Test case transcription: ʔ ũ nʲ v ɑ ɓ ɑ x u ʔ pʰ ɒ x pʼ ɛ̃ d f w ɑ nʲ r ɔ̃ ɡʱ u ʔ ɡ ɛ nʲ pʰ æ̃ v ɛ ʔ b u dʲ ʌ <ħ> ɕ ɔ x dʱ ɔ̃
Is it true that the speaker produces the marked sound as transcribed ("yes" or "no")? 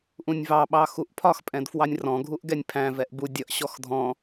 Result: no